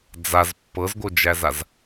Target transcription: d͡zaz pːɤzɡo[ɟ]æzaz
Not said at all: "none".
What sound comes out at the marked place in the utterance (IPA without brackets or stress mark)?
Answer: d͡ʒ